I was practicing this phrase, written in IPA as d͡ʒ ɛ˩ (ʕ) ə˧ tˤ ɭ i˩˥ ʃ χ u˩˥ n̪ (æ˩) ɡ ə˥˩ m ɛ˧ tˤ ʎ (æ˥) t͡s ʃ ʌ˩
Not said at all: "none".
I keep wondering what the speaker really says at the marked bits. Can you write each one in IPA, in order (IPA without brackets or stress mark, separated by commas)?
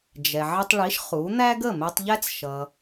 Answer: ʕ, æ˥, æ˥